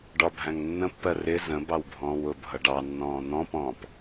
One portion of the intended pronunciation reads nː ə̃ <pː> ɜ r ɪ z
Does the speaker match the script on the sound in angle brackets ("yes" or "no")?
yes